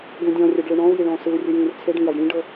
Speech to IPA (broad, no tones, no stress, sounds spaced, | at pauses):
ɡ ũ dʲ ɔ̃ rʲ ɛ ɖ ɭ ɯ ɳ ɔ̃ u̯ j i ɭ ɔ̃ː s ɯ u̯ rʲ ɯ j ĩː r t͡sʰ e ɖ ĩ j a ɖ ɽ ĩ ɖ ɤ